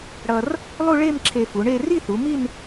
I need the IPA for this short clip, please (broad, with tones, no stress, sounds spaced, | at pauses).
ɽ ʌ˧ r | lˠ u˥˧ ɭ e˥˧ m ǁʰ e˧ f u˩˧ ɳ e˥˧ r i˥˧ θ u˩˧ m i˥˧ n